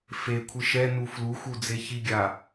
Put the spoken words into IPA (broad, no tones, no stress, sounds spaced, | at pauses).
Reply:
f e kʷʰ ɯ ʃ ɛ n u f l u x u d͡z e ç i ɡʲ a